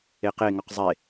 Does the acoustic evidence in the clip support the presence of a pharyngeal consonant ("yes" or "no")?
no